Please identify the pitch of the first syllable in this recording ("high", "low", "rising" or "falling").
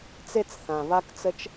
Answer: high